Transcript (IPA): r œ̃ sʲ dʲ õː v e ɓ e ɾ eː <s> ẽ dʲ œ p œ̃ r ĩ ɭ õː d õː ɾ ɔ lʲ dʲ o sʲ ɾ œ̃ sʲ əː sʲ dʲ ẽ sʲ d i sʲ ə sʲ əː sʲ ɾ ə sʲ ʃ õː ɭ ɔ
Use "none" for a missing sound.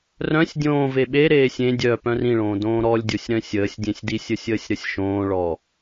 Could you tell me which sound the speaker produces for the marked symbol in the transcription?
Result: sʲ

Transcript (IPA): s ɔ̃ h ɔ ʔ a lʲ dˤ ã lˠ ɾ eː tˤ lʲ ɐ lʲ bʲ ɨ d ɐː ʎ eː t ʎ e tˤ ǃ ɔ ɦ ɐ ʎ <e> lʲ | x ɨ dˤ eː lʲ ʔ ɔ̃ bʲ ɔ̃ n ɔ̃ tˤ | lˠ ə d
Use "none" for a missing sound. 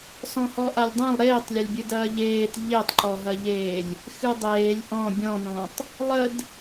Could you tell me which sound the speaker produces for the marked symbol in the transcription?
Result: eː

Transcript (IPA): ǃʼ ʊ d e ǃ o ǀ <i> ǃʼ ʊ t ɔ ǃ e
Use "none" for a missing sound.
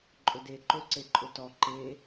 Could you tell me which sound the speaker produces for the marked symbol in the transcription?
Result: e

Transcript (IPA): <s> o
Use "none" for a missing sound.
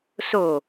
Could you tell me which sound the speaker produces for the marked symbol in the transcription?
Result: s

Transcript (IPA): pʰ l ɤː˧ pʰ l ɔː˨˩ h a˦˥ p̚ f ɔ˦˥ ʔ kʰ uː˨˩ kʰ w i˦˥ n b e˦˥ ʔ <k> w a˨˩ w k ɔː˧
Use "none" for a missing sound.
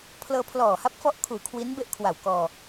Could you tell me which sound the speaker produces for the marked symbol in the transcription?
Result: kʰ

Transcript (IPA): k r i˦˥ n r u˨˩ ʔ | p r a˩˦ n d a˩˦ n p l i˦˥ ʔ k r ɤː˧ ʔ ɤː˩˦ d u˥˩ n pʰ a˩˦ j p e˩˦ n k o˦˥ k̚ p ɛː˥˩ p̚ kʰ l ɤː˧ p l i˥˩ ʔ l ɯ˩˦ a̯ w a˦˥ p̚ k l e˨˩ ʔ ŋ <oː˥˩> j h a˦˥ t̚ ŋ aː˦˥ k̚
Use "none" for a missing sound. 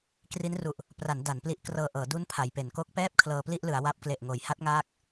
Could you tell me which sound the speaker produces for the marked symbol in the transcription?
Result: oː˩˦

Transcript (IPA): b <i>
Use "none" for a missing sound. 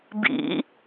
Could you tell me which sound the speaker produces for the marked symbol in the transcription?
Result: ḭ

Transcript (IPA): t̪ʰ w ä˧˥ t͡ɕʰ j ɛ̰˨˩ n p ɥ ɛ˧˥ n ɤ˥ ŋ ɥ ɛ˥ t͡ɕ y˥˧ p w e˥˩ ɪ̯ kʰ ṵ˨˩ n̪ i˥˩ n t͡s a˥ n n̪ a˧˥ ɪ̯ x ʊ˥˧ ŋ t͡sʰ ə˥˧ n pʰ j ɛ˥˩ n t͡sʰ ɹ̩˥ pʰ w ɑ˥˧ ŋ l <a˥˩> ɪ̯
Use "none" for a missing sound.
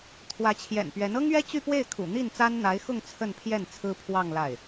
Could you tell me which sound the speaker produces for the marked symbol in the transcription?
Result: a˥˩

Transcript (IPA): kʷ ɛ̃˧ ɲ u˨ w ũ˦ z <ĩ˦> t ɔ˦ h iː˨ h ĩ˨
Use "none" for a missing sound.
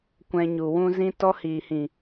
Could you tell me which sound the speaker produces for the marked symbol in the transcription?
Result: ĩ˦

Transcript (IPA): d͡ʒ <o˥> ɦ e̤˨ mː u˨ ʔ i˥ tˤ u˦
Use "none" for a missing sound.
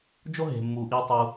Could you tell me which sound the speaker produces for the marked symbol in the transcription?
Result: o˥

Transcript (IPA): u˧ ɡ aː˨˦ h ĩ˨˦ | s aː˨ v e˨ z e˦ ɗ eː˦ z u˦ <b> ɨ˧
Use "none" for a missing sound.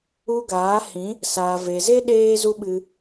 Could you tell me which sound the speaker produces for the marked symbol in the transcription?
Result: ɓ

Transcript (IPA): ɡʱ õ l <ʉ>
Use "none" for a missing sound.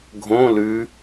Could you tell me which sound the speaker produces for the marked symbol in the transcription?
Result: ʉ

